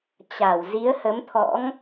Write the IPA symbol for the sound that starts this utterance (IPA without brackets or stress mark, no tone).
t͡ɕ